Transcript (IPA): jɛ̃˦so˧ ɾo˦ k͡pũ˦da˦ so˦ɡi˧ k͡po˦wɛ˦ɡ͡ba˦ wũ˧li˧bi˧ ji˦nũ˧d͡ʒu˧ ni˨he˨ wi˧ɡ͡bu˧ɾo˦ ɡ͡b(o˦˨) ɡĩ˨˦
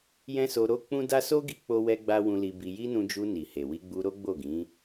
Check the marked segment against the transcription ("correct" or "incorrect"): correct